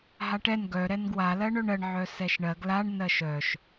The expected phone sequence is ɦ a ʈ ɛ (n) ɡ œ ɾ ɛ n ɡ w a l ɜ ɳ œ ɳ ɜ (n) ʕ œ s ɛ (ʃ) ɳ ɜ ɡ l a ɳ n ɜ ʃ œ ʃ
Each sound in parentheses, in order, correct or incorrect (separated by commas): correct, incorrect, correct